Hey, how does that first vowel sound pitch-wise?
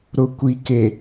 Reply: low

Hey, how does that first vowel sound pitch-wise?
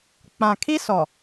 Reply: low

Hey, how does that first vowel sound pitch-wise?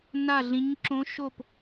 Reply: falling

